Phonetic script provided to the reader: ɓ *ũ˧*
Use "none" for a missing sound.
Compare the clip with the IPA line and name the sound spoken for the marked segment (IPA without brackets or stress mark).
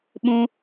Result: ũ˧